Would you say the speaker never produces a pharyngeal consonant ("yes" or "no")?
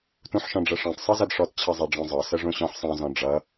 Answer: no